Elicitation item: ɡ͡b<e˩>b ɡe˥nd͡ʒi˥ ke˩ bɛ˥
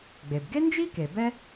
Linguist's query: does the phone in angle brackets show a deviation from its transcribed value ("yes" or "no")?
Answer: no